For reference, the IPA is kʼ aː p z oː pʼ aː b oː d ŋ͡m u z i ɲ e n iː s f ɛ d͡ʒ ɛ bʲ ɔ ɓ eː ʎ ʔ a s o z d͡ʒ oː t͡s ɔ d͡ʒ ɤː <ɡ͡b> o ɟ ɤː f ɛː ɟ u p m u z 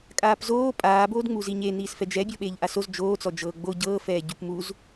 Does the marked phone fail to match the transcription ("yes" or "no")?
no